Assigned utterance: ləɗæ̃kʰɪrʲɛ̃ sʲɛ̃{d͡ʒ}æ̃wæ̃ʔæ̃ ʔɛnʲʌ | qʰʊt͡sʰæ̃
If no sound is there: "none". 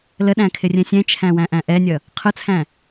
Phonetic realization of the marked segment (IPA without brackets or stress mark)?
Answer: t͡ʃʰ